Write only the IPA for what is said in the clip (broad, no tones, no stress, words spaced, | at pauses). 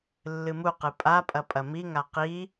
lːɨmuqɨ pʼapʼɐ pʼɐmiŋa qi